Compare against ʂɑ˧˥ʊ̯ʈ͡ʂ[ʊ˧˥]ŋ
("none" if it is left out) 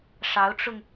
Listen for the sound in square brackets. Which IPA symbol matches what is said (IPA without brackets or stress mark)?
ʊ˧